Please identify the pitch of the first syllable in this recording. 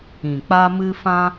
low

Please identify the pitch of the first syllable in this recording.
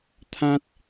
high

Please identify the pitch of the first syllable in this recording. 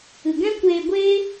low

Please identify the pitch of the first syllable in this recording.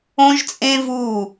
high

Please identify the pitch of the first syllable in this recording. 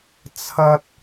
high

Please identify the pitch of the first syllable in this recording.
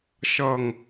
falling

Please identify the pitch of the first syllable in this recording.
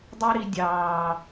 high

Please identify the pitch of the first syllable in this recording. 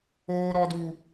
high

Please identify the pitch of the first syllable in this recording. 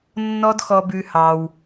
high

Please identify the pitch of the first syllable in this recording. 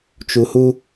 low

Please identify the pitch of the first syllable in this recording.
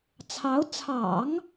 rising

